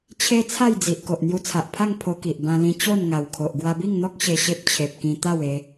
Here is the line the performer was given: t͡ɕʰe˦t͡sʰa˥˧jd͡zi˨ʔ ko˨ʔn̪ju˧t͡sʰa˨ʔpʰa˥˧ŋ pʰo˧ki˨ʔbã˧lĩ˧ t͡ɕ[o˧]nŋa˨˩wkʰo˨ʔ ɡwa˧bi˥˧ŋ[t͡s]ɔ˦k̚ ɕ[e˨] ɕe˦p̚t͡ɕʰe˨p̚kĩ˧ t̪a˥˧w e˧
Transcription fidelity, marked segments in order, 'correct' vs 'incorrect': incorrect: o˥˧, incorrect: n̪, incorrect: e˧

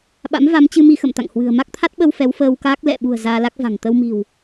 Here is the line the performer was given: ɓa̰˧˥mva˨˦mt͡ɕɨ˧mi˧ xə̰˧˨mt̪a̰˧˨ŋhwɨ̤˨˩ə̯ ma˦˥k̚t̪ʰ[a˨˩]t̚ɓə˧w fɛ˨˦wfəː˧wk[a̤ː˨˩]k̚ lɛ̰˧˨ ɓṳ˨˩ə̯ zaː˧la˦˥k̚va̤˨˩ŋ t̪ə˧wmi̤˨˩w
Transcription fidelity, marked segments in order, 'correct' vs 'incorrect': incorrect: a˦˥, incorrect: aː˦˥

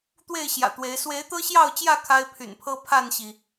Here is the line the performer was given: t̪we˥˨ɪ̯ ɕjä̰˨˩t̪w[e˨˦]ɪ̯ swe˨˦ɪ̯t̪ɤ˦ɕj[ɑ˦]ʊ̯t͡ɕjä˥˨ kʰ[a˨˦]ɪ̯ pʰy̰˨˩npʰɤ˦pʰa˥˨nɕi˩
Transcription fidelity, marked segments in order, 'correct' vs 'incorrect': correct, incorrect: ɑ˥˨, incorrect: a˦

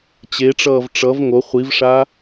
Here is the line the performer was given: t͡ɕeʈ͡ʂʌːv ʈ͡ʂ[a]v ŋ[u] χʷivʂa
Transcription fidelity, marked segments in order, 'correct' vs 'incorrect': incorrect: ʌ, incorrect: o

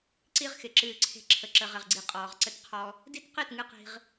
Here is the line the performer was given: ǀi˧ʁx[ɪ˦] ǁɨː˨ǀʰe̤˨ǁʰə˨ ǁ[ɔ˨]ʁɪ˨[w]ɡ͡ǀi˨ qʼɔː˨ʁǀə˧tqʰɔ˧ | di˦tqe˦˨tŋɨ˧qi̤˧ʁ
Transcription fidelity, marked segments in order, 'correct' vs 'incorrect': incorrect: ɪ˨, incorrect: ə˨, incorrect: ʁ

